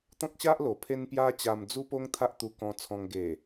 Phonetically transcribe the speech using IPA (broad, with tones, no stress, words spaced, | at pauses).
t̪ɔ̃˦k̚ɕa˦ʔlo˨˩ pʰe˦npja˦ t͡ɕa˧md͡zu˦po˦ŋ t̪ʰa˦ʔt̪u˧kɔ̃˧t͡sʰɔ̃˧ŋ ɡe˨˩